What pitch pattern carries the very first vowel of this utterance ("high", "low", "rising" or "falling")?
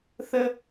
high